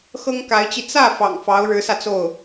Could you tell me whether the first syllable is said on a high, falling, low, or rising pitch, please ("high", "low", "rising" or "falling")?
high